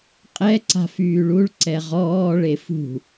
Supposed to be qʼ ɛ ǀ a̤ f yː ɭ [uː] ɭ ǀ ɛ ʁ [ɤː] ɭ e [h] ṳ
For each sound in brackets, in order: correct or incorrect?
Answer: incorrect: u, incorrect: ɔː, incorrect: f

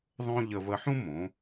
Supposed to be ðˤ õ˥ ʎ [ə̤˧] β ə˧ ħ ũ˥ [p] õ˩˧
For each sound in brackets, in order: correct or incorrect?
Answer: incorrect: ə˧, incorrect: m

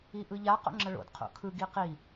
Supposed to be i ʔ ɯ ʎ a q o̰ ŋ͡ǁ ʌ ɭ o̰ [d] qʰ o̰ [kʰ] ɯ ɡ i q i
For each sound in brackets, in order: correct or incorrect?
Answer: correct, correct

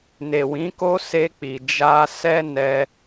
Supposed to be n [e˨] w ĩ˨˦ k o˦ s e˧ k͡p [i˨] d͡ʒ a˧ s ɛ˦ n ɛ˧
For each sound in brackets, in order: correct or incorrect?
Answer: correct, correct

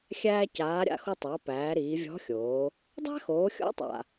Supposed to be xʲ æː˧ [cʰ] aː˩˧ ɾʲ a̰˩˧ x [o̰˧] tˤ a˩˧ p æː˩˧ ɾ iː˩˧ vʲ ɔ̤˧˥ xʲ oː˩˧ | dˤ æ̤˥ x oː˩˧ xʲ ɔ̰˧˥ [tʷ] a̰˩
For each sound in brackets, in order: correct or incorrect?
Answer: incorrect: c, incorrect: o˧, incorrect: tˤ

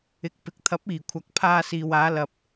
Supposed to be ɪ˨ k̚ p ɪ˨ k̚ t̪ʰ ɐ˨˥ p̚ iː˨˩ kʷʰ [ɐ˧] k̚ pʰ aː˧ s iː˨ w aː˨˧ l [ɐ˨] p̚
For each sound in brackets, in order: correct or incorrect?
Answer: incorrect: ɐ˨˥, correct

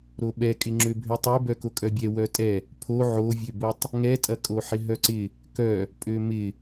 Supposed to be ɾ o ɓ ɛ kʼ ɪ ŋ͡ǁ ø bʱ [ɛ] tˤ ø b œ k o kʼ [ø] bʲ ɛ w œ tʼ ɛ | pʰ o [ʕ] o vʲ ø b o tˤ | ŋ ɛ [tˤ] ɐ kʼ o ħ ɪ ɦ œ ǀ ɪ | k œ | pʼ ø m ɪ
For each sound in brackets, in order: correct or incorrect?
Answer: incorrect: ø, incorrect: œ, correct, incorrect: tʼ

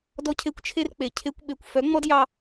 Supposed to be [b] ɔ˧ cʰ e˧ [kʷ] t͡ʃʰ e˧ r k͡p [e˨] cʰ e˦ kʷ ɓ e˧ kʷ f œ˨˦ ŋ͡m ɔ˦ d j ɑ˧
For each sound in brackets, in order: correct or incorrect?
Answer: incorrect: d, correct, correct

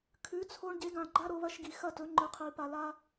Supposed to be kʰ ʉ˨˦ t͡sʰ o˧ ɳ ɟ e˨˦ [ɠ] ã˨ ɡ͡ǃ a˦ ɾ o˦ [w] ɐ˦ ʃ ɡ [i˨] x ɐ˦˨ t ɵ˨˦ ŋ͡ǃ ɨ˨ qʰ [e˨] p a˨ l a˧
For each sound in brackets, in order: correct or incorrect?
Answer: incorrect: ɡ, incorrect: β, correct, incorrect: i˨

